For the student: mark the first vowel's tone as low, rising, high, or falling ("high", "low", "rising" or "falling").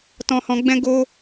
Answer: high